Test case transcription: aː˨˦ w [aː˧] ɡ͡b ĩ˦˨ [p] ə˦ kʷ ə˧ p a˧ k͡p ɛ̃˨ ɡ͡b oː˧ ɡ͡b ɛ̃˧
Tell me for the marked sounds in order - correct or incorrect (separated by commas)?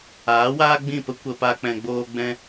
incorrect, correct